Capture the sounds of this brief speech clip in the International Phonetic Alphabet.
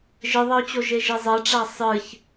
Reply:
ʒ ɨ ðˤ ɐ ʊ̯ t͡ɕ o ʒ e ʒ i zˤ ɛ ʈ͡ʂ a sˤ ɨ ç

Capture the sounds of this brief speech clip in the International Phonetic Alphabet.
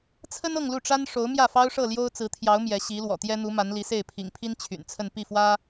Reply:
t͡sʰ ə˥ n ɤ˥˧ ŋ l u˥˩ ʈ͡ʂ a˥ n ʂ o˧˥ ʊ̯ m j ä˥˩ f ɑ˥ ʊ̯ ʂ ɤ˥˩ l j o˥ ʊ̯ t͡s ɹ̩˧˥ t̪ʰ j ɑ˧˥ ʊ̯ m j ɛ˧˥ ɕ i˧˥ l w ɔ̰˨˩ t̪ j ɛ˥ n̪ u˧˥ m a˧˥ n l i˧˥ s e˥˩ ɪ̯ pʰ ḭ˨˩ ŋ pʰ i˥ n t͡ɕʰ y̰˨˩ n t͡sʰ ə˥˧ n p i˥˩ f w ä˥

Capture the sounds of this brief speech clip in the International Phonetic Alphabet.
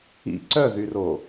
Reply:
ḭ ǀ œ ð y r o

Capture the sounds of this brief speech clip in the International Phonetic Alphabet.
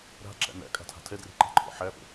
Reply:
ɾ a̤ ǁ æ̰ n æ̰ kʼ a̤ tʰ a̤ tʰ ɛ d r e̤ ǃ a̤ ǃʰ ɔ̰ ħ æ f ə̰

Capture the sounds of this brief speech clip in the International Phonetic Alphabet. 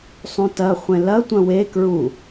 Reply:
sˤ ũ t ɐ χʷ ẽ l ɐ tʷ ɐ̃ w e k ɹ u

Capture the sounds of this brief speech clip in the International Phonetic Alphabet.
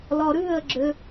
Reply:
l ɔ ɾ ʉ ə̯ ɡ͡ǁ ʏ

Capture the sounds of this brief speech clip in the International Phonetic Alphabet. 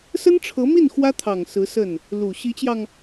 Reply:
s ə˥ n ʈ͡ʂʰ ɤ˧˥ m i˥˩ n x w ä˥ t̪ʰ ɑ˨˩ ŋ s ɹ̩˧˥ s ə˥˩ n | l u˨˩ ɕ i˧˥ t͡ɕ j ɑ˧ ŋ

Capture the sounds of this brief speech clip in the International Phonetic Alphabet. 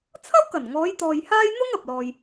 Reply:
t͡sʰ ɐ˥ w k ɐ˨˩ n ŋ ɔː˨˧ j t̪ ɔː˨ j h aː˥ j n̪ ʊ˥ ŋ ɐ˨ p̚ l ɔː˧ j

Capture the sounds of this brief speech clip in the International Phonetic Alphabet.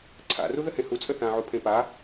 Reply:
ǀʰ a̰ r u ð ə h ẽ h u t͡sʼ ə θ ã ʕ u pʰ ẽ p a

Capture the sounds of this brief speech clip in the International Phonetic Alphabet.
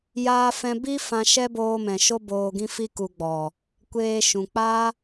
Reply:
j aː˧ f ɛ̃˧ b i˦ f ã˧ ʃ ɛ˦ b oː˧ m ɛ̃˨ ʃ o˧ b oː˨ ɡ ĩ˧ f i˧ k u˨ ɡ͡b ɔ˨ | kʷ eː˧ ʃ ũ˨ k͡p aː˦

